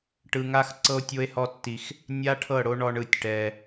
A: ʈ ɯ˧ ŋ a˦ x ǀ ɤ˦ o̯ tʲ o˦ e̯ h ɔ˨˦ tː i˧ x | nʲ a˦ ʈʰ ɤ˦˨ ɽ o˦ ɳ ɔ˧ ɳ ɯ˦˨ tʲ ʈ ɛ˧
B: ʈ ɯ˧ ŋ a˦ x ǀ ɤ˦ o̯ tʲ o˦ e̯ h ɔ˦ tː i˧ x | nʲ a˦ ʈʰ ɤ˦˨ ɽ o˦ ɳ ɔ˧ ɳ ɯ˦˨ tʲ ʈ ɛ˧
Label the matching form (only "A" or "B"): B